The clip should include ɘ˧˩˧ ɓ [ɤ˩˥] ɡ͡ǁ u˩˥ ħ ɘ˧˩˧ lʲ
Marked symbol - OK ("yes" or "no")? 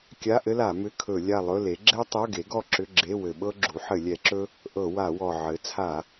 no